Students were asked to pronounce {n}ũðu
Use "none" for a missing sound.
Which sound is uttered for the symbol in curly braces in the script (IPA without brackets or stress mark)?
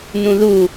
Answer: n